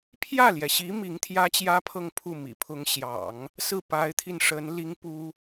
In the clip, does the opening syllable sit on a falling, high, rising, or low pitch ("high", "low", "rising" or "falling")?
falling